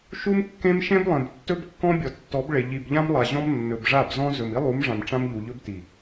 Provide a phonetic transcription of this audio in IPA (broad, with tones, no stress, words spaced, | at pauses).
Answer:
ʃu˦mkːẽ˦m ʃẽ˦blˠẽ˨btːɵ˦bkːɔ̃˦ bʲɔ˨tːɔ˨˦b ɭe˨ ʎi˨bʎã˦mlˠa˨ʑɔ̃˦m nːɵ˨bʐa˦˨bzɔ̃˦ zɵ˨mi˦lˠu˨˦mʐã˨m ʈ͡ʂã˦mʎu˨ʎɵ˦b ti˨